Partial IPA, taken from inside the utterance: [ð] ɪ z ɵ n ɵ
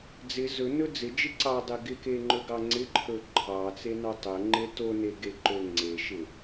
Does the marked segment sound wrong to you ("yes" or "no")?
yes